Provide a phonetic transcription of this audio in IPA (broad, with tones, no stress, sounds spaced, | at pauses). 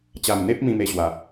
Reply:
t͡ɕ a˨˩ m n̪ e˦ p̚ m ĩ˦ m e˧ ɕ w a˨˩